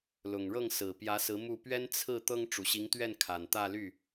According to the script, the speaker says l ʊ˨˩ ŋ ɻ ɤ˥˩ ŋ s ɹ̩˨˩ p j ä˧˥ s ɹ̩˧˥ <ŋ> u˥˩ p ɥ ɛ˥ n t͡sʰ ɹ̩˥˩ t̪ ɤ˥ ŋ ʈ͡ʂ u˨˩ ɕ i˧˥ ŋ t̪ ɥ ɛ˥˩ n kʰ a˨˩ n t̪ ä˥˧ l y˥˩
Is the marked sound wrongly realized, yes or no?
yes